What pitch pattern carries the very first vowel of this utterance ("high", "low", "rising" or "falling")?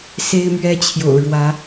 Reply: high